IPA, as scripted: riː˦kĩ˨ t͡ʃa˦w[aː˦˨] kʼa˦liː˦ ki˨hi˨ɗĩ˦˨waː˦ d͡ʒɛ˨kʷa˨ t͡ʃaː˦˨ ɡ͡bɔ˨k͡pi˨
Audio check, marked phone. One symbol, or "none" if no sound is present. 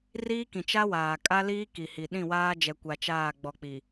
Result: aː˨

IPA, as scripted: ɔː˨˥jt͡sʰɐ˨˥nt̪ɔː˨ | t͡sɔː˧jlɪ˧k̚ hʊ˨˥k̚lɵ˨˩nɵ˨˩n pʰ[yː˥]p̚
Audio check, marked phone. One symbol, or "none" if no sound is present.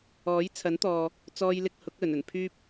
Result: yː˥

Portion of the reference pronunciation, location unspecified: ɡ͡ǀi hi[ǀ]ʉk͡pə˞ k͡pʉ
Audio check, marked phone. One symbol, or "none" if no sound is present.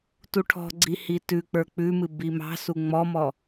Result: t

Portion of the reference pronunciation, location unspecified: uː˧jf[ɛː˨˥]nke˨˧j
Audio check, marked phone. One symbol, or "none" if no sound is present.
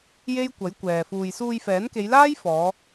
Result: ɛː˨˥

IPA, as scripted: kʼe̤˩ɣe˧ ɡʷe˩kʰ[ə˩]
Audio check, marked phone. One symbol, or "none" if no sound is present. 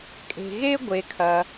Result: ɐ˩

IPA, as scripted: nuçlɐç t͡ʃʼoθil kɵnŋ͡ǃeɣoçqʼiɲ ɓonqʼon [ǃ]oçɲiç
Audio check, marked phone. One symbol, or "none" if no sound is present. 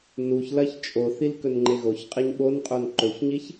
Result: ǃ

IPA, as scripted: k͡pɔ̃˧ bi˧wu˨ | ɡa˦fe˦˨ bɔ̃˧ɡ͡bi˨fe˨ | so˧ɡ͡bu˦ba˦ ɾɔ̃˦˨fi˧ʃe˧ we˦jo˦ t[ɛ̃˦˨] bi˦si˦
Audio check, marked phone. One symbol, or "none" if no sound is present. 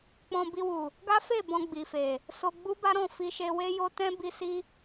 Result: ɛ̃˦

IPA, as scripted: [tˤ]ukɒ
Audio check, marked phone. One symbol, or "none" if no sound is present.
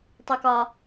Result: tˤ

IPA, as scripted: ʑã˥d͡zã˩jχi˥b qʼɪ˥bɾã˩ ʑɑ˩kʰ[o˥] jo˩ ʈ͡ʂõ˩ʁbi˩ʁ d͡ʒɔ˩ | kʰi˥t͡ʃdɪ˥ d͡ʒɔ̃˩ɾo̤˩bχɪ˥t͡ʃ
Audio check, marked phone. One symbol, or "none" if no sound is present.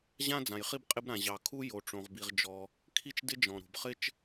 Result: u˥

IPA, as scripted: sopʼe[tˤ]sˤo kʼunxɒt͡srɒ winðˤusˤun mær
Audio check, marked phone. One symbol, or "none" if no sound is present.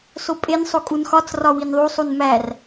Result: n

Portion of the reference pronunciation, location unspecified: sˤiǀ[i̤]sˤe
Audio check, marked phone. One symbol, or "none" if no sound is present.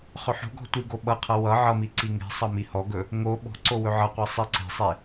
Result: e̤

